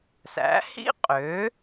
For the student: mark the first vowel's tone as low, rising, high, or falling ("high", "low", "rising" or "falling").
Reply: rising